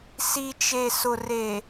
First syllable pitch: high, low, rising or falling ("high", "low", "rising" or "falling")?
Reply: low